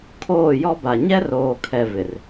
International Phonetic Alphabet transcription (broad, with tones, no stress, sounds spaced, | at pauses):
kʰ oː˦˨ j ɔ˦ b a˨ ɲ ɛ˦ r oː˨ kʰ ɛ˨ v ɪ˨ r